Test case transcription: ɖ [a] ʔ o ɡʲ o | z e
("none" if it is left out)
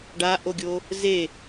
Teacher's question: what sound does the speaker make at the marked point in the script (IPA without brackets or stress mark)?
a